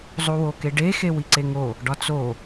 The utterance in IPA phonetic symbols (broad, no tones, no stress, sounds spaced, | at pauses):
zˤ u w o k e ɖ e x e w i ǀ e ŋ o | ɖ ɒ t͡s o